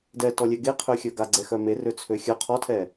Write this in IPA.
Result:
d ɛ t ɔ lʲ ɛ ɡ e qʰ ø xʲ œ ɡ a ɡ͡ǀ ɛ x œ m e r ø t͡sʰ ø xʲ œ qʰ ɔ tʰ ɛ

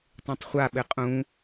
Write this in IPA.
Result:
tˤ ẽ tˤ χʷ a ɓ ɘ qʼ ũ

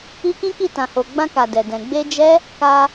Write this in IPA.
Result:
i˧ k ĩ˦ k i˦˨ t ã˨ h o˨ ɡ͡b ã˧ k a˨ d ɛ˨ d ɛ̃˨ ɡ͡b e˧ d͡ʒ ɛ˦ | k a˧

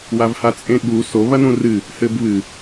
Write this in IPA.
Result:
w a v h a t͡sʼ ẽ ɠ u s o β ɐ n ũ r ɨ | h ɘ b β ɨ

